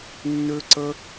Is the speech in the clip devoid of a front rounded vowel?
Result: no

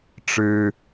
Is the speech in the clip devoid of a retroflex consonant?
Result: no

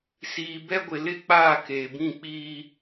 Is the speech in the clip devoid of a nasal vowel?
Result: no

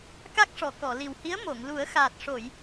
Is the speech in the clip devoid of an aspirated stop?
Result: yes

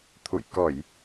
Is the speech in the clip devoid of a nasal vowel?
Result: yes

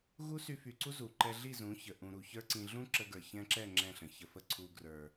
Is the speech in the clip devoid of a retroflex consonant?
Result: yes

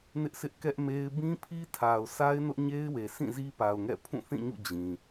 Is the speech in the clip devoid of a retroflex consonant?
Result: yes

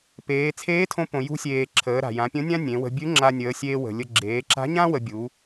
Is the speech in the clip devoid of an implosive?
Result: yes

